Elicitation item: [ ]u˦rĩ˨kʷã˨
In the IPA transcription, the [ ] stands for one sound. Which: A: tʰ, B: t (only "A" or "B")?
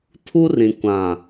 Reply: A